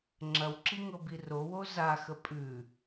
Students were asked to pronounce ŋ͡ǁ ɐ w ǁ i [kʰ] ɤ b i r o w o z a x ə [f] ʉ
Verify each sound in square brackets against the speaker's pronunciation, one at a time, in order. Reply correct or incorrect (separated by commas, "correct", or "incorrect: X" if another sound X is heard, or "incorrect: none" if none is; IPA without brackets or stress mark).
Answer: incorrect: ŋ, incorrect: pʼ